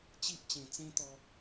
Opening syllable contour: high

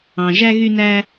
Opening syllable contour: low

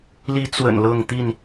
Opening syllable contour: rising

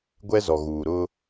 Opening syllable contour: high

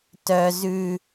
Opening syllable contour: high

